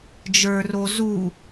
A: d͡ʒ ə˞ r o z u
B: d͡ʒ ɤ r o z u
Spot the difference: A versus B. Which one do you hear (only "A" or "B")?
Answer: A